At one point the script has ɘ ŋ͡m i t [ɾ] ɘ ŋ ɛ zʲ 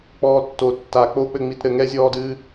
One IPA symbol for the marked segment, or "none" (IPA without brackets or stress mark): ɾ